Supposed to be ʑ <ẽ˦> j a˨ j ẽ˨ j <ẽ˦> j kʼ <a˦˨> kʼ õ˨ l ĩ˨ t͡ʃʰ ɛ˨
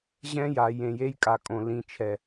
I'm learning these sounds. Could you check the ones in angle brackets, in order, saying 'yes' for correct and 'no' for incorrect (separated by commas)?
no, no, no